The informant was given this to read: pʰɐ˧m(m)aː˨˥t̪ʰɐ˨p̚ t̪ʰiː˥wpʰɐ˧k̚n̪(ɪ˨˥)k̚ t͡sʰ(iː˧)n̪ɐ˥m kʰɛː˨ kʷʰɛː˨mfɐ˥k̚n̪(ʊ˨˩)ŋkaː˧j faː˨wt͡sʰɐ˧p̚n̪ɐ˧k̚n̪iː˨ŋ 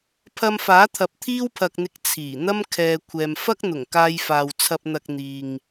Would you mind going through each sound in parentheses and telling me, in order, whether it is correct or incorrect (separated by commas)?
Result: incorrect, incorrect, incorrect, correct